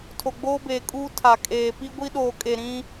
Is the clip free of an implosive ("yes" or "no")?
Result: no